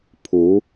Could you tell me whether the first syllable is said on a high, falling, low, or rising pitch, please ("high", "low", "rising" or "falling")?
rising